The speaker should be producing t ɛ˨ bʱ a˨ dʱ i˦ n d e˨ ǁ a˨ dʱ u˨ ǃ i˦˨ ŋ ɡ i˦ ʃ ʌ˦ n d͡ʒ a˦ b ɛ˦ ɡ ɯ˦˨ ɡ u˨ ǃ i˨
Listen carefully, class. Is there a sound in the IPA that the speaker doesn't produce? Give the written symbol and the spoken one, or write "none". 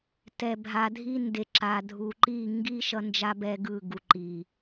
none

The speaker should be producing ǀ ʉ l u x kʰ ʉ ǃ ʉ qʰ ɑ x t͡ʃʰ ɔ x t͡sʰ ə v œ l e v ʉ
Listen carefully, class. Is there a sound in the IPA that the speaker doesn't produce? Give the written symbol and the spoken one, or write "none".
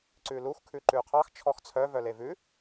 ə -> œ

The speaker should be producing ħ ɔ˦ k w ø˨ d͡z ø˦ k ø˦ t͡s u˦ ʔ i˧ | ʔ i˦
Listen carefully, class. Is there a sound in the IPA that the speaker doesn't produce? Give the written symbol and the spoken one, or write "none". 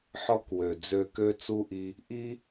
none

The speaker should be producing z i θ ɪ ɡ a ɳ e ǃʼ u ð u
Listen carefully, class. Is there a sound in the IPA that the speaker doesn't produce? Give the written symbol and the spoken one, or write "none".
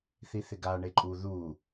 z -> θ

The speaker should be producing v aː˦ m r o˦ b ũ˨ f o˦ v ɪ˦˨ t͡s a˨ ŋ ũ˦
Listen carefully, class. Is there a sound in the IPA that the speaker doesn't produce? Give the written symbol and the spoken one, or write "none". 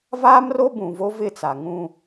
f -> v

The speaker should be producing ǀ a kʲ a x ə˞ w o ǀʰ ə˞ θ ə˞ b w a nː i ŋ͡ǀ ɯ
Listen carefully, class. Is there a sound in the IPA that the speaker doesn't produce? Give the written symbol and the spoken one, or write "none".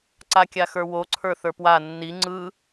b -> p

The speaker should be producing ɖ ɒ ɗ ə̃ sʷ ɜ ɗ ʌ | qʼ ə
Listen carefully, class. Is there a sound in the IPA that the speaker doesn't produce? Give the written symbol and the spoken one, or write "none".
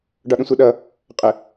none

